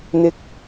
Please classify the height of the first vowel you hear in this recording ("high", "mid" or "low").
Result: high